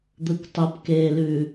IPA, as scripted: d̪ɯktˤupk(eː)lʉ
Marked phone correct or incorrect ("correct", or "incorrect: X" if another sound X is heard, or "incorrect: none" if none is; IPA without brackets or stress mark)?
correct